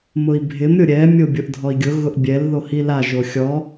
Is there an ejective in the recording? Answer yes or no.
no